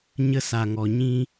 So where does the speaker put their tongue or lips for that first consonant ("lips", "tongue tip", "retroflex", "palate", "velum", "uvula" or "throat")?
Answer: palate